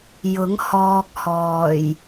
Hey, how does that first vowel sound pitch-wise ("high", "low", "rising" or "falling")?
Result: rising